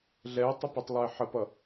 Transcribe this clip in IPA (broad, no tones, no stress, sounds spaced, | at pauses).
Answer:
ɮ ɛ ə̯ tˤ ʊ p ɛ tˤ lˠ ə˞ ɪ̯ ħ ə p ʌ